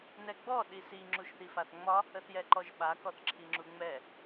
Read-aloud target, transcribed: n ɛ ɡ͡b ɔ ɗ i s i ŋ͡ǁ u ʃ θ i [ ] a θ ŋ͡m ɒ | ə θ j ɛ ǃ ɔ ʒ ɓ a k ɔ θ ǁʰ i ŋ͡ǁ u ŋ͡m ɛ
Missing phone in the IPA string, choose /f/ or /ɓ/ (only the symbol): f